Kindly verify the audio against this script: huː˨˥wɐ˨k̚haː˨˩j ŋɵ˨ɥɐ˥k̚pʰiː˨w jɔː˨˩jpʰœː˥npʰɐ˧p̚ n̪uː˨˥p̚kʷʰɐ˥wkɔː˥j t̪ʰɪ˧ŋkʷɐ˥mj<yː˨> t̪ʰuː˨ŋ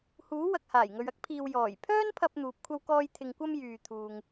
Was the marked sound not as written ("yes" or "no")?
no